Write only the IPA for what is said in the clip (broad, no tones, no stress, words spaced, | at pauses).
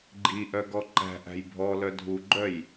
ɡ͡ǃiʔœɡɔ ǃæ̤ʔæ̤j bʱɔlœ dʱuɡ͡ǃœj